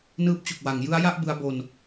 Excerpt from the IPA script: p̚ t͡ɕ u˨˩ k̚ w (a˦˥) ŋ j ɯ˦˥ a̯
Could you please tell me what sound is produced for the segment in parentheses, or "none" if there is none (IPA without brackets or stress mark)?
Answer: a˩˦